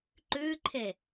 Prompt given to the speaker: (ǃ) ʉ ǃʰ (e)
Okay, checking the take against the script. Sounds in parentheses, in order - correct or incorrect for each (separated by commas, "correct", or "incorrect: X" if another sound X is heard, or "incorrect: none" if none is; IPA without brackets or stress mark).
correct, correct